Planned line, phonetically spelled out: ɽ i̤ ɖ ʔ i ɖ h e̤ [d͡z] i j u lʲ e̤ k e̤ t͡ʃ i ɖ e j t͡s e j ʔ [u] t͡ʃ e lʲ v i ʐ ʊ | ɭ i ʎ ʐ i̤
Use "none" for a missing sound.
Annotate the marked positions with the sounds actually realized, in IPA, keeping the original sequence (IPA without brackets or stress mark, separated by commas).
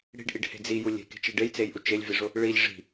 d͡z, u